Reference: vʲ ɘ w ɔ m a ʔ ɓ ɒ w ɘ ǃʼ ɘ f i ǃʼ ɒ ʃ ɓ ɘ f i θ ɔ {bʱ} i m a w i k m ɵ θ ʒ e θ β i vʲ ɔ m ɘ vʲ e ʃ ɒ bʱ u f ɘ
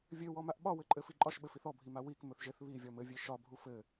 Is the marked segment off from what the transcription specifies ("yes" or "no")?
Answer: no